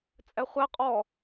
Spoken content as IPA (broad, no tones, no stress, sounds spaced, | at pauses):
t͡sʼ ɛ χʷ ɛ qʼ ɔ